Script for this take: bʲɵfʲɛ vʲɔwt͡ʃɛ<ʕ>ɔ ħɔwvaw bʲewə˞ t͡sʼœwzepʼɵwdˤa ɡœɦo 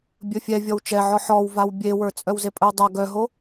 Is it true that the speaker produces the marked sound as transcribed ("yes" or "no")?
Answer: yes